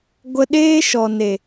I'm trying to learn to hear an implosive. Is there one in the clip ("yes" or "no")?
yes